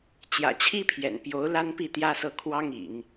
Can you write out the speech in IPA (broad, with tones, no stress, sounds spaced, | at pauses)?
t͡ɕ j ä̰˨˩ t͡ɕʰ i˥ pʰ j ɛ̰˨˩ n p j o˧˥ ʊ̯ l a˥ n p i˥˩ t̪ j ä˥ s ɤ˥˩ kʰ w ɑ˥ ŋ ḭ˨˩˦ ŋ